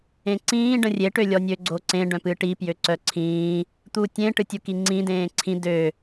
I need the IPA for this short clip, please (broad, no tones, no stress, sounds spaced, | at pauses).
ẽ ǀ ĩː ɖ ə̃ rʲ e ʈ ø lʲ ɔ nʲ ø ɡ͡ǀ o ǀ ẽ ɖ œ̃ p ɨ ʈ i p j ø ǀ œ ǀʰ ĩː | t̪ u tʲ ẽ ʈ ɨ tʲ u k i ŋ͡ǀ ĩ d ẽː ǀʰ ĩ d ø